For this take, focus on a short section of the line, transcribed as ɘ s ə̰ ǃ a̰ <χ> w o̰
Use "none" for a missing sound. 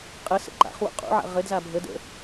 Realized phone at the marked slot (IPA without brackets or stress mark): χ